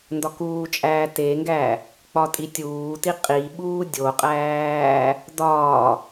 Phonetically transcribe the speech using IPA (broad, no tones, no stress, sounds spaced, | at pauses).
n d ɒ k uː t͡ʃʼ æː t e ŋ ɡ æ | k͡p ɒ tʼ i tʲ uː t i qʼ i ɓ uː dʲ o qʼ æː | d ɒː